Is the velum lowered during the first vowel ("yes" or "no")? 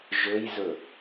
no